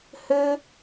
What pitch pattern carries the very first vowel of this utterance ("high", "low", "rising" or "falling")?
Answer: high